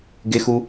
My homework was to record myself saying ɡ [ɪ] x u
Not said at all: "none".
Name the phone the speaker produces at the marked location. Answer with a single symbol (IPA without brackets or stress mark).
ɪ